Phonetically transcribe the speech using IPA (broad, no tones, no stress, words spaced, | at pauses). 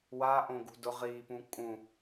waʔõɡṳ dʊʁiːpũ kʼũ